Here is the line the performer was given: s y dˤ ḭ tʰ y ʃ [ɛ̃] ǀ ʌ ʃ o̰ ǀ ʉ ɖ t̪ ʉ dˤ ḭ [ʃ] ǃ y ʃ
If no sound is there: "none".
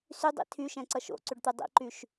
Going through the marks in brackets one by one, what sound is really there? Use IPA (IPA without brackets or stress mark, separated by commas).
ɛ̃, none